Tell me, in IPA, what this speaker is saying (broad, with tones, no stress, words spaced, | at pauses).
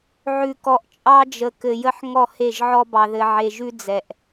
ʕʉ˨kɔ˨ʔ t͡ʃʼɑ˦d͡ʒə˨ kɘ˨jə˦ħ ŋɔ˦˨he˦˨ʒʕɔ˦ bɑ˨ðɘ˨ʕe˨ʒʉ˦ d͡zɛ˨ʔ